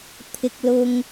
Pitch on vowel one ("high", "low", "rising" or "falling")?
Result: high